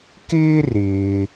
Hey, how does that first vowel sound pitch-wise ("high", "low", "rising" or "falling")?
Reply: high